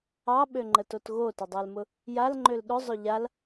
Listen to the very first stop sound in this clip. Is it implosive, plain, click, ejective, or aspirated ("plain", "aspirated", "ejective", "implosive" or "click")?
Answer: implosive